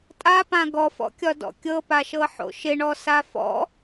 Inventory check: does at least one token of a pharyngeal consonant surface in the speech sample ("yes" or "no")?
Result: yes